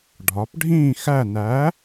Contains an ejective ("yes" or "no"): no